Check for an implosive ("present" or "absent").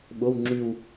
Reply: present